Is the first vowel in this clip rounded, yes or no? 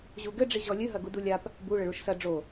yes